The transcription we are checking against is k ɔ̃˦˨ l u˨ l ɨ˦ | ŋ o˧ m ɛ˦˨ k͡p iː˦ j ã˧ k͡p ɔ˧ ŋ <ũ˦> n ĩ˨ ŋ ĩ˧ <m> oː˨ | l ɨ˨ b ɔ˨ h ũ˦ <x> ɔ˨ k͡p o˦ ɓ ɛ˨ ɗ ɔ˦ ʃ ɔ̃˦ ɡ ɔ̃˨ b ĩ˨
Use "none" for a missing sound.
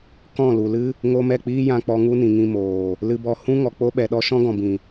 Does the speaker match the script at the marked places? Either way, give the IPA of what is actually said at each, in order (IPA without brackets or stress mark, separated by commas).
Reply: u˦, m, ŋ